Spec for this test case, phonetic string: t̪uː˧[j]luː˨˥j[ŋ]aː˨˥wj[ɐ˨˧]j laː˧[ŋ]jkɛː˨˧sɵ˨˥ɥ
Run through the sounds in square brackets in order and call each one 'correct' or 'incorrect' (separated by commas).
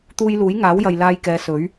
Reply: correct, correct, incorrect, incorrect